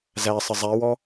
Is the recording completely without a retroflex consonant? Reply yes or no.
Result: yes